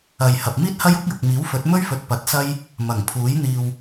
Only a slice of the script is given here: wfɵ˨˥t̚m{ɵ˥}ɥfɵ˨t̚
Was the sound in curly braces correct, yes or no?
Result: yes